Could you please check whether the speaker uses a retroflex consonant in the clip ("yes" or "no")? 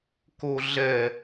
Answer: no